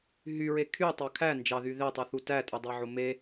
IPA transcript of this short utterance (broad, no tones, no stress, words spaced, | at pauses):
ɦyɹe kʰytˤɑ kʰæ nd͡ʒɑðy ðetˤyθu tætʼudˤɑʕo me